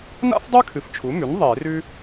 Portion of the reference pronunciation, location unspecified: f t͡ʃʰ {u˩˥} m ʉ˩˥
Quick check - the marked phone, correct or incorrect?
correct